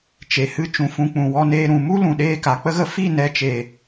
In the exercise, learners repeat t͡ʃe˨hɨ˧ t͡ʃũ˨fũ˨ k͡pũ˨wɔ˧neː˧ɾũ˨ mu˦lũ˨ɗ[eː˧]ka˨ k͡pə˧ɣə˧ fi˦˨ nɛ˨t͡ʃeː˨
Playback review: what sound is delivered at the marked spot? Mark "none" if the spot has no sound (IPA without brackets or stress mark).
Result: eː˧